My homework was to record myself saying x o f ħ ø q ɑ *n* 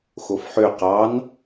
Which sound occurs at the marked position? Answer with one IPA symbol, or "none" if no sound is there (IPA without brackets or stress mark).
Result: n